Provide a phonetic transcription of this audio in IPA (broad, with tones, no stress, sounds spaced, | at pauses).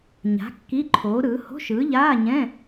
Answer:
ɲ a̤˨˥ kː i˧˥˧ ǃʰ oː˨˥ ɾ ɯː˨˥ h o̤˧˥˧ ʃ ɯː˨˥ ʎ aː˧˥˧ ɲ ɛ̃˧˥˧